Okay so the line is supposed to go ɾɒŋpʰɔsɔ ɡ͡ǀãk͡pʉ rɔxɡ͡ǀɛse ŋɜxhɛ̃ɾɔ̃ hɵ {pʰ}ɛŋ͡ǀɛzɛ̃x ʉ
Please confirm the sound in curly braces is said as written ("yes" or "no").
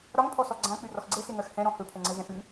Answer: yes